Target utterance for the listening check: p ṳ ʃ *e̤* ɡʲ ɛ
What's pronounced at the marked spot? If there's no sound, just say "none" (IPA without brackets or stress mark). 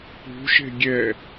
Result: e̤